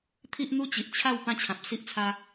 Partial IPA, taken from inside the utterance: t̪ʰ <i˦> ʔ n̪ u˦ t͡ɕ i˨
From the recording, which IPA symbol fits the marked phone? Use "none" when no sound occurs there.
i˦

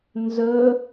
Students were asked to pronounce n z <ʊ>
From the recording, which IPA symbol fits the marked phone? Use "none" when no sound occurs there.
ɵ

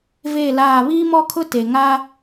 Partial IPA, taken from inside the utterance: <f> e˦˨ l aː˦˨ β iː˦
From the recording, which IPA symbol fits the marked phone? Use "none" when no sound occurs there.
v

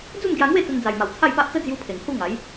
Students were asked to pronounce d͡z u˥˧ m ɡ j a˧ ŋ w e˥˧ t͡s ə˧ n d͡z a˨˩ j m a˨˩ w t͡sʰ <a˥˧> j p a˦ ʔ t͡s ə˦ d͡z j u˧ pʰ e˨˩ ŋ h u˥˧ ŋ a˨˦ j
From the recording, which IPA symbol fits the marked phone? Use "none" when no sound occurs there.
a˥˧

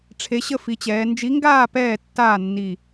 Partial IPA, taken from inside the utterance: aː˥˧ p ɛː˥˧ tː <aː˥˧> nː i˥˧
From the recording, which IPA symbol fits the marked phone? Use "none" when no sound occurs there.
aː˥˧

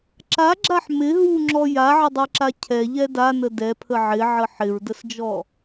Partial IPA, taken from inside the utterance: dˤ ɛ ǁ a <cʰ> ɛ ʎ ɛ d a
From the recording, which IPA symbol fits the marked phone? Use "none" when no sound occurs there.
cʰ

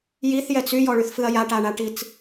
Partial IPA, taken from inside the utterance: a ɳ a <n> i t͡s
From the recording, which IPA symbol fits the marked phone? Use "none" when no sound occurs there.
ʈ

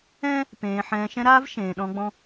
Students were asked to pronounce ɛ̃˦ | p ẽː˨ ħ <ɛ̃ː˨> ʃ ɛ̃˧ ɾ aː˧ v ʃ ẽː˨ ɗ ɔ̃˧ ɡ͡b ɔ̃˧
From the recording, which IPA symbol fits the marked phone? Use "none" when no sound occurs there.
ɛ̃ː˨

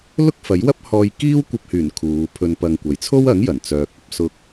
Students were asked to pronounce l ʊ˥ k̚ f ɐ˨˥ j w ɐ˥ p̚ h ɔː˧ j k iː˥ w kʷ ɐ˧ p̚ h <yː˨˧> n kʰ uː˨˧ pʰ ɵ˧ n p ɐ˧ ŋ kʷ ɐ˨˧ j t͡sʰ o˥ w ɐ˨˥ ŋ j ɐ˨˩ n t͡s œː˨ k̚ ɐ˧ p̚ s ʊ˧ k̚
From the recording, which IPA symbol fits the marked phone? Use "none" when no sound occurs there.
yː˨˩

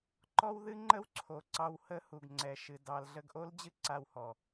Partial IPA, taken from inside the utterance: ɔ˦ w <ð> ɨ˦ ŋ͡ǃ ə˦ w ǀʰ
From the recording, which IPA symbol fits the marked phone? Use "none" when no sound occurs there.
ð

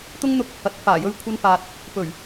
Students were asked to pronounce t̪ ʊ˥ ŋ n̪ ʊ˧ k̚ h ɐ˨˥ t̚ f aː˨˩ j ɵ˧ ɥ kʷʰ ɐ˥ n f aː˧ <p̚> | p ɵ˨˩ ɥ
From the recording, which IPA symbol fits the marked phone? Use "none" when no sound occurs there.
t̚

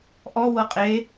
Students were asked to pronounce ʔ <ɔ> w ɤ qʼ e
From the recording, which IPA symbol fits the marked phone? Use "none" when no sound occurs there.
ɔ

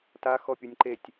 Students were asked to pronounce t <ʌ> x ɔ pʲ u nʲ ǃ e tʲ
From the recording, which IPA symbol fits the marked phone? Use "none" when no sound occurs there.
a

